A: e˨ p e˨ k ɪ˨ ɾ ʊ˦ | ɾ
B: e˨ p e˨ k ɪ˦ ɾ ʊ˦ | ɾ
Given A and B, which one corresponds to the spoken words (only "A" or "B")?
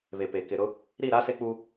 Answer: A